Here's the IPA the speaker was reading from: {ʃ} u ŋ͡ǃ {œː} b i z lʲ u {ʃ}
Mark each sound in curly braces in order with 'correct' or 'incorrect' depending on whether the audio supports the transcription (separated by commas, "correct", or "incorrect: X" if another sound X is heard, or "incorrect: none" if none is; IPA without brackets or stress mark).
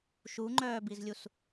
correct, correct, incorrect: s